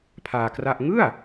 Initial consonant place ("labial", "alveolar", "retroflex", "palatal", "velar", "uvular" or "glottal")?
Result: labial